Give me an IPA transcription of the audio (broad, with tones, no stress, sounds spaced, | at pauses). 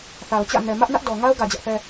θ a˨ ʊ̯ t͡ɕ ä̰˦˨ n ɛ˨ m ä˦ ʔ n ä˦ ʔ d ɔ˨ ŋ a˦ ʊ̯ ɡ ä˨ d͡ʑ ä˦ ʔ θ ɛ˦